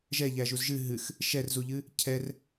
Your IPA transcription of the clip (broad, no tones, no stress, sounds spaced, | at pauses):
ʒ ɛ ʎ æ ʒ u z ʒ ɨ ɦ ɨ x | ʃ ɛ r z u ʎ ɨ | cʰ ɛ r